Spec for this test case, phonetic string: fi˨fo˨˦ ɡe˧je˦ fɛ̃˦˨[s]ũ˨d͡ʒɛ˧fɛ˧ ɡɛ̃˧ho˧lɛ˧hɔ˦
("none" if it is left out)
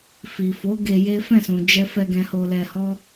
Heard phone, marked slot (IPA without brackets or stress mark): s